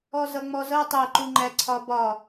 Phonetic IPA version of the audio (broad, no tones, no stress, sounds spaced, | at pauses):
ɔ z ʌ ŋ͡m ɔ z ʌ tˤ æ ǃ u ŋ͡ǃ æ ǀʰ ɒ b ɒ